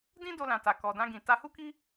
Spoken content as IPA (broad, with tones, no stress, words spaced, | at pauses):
dĩ˦ do˧lã˨ta˨ kɔ˨dã˧ɡĩ˨ ta˧hu˦ki˦